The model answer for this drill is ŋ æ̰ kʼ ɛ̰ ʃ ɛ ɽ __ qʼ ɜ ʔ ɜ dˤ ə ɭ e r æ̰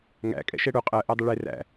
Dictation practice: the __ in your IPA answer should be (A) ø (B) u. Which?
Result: B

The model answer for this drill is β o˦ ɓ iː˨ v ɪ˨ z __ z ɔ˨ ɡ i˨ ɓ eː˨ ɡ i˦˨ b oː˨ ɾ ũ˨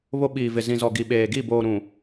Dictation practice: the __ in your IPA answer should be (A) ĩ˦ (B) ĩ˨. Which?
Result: B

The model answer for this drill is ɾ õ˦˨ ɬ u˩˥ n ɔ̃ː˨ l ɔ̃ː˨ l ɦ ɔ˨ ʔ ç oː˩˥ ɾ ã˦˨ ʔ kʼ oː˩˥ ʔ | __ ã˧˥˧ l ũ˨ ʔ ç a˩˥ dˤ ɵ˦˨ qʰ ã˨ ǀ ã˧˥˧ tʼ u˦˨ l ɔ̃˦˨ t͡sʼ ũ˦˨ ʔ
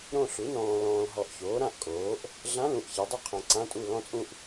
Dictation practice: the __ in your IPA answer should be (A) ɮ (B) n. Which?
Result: A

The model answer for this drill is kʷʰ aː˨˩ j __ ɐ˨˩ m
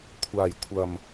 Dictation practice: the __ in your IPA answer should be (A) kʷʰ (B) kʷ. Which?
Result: A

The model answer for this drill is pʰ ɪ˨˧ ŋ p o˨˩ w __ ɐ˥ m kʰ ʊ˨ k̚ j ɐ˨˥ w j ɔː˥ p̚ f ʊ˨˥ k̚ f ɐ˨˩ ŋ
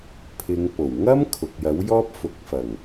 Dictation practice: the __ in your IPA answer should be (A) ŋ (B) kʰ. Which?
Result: A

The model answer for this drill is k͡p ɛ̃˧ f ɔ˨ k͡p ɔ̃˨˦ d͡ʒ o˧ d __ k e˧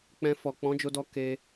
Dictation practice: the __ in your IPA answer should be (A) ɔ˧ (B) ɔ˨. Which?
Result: A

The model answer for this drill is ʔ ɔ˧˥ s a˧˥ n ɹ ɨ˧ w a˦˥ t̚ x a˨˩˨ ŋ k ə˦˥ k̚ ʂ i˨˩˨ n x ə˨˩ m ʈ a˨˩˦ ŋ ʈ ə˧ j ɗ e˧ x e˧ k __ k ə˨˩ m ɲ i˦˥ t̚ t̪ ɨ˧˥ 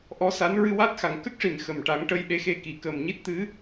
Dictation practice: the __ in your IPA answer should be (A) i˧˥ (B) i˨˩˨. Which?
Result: B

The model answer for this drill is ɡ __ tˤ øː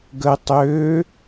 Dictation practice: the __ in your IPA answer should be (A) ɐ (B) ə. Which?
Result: B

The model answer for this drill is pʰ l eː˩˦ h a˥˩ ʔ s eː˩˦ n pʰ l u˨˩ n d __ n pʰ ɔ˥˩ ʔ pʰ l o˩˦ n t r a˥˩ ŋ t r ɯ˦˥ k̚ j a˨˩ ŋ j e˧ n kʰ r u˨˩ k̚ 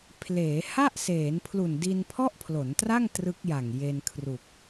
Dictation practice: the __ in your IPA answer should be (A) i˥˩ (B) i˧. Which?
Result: B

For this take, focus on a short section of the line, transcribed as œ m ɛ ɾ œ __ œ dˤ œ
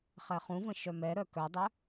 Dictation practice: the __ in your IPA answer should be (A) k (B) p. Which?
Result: A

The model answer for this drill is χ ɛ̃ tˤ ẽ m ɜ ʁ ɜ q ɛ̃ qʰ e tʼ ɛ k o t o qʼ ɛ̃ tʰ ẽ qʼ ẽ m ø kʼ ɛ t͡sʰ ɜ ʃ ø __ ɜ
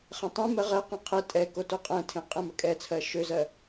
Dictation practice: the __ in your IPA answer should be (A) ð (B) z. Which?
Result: B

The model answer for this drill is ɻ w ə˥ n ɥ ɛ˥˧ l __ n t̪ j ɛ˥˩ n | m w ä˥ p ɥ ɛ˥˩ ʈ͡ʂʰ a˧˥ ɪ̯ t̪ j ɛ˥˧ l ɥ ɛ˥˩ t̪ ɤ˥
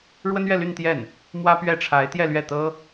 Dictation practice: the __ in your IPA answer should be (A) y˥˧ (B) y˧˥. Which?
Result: A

